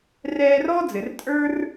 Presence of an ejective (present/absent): present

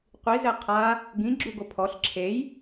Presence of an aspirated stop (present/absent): present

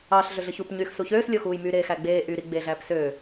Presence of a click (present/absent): absent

